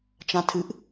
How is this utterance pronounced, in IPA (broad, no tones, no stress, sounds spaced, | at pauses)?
t͡ʃ ã tʰ ɨ ʔ